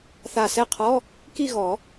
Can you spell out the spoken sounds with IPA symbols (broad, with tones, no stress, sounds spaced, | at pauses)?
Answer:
θ a˧˩ s ɛ˥˩ qʰ ɔ˧˥˧ | k i˥˧ ɣ ɔ˨˩˦